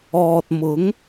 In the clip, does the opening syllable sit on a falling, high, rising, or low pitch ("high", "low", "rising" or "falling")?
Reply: low